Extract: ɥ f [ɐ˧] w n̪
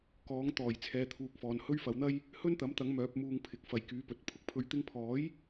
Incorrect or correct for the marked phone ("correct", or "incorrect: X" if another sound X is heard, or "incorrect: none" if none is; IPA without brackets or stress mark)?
incorrect: ɐ˨˧